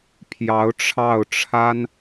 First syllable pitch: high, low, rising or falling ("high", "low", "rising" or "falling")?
rising